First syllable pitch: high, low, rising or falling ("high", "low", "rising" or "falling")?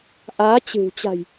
rising